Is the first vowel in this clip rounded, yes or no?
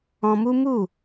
yes